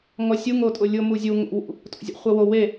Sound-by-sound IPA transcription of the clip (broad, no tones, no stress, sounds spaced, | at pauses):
ŋ ɔ sʲ u ŋ o tʼ ʊ lʲ ʊ m u zʲ u ŋ o̰ w ṵ | tʼ o̰ zʲ a̰ χʷ ɛ w o w e